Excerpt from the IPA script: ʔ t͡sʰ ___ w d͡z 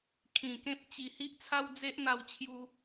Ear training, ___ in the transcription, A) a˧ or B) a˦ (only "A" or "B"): B